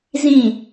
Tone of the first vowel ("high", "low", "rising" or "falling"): falling